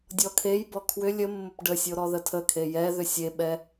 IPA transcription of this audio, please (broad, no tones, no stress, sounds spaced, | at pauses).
dʲ ɔ kʰ e j b ɔ kʰ w ʏ lʲ ə mː ʊ p ɖ ə sʲ o ɾ ɔ ð ə tʰ ə kʰ e j ɛ ð ʏ sʲ e ɓ ɛ